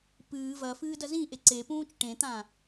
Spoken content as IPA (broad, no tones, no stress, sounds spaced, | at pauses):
p ɨː v ɐ f ɨː d ɐ z ĩ ʔ e ǀ e p ũː t͡ʃ ʈ ẽ t̪ ã